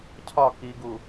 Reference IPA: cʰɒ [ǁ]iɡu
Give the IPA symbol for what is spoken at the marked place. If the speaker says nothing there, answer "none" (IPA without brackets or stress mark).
k